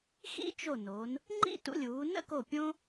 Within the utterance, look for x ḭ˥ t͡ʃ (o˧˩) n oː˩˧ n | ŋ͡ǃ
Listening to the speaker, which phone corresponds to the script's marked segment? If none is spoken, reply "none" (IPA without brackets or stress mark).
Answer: o˧˩